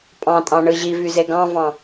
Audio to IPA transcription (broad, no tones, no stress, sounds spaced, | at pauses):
pʼ ɑ̃ tʼ ɑ̃ ɳ ɯ ʑ i v y z e ɡ ɑ̃ v ɑ̃